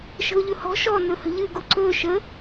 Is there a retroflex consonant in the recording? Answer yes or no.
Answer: no